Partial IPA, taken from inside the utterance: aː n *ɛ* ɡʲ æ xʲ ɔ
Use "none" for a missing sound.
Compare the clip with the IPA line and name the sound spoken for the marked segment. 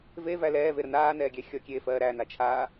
ɛː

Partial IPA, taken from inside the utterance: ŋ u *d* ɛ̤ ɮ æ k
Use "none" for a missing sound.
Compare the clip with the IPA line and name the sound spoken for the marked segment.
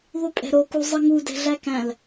d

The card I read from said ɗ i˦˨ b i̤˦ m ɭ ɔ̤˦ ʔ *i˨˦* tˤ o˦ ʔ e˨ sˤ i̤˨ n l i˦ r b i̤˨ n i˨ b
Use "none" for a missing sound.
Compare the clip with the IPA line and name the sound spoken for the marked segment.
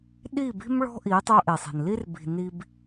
i˨˦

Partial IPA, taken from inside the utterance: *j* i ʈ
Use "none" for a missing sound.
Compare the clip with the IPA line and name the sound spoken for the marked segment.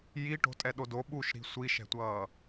j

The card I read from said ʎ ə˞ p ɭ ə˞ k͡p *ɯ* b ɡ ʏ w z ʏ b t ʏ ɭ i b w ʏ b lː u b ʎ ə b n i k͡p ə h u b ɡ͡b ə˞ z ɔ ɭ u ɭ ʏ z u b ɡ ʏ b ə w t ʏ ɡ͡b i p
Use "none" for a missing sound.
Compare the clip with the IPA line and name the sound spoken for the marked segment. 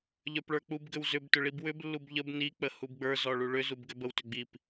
u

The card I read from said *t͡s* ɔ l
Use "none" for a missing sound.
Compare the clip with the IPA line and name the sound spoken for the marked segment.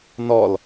n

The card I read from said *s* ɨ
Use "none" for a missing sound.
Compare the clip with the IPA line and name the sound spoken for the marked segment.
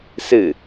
s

